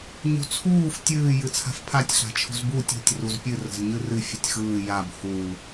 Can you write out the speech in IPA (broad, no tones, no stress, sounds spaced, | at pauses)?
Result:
ɲ ṳ t͡sʰ uː f tʲ ɨː j ɨ t͡sʰ a̤ f pʰ a tʲ ɬ a̤ t͡ʃʰ ṳ z b u tʲ ṳ tʲ r u z pʲ ɨ r ə̤ z ɲ ɨ r ɨ fʲ ɨ tʲ x ɯː j a b h u